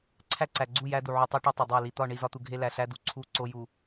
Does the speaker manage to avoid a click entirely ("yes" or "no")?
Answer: no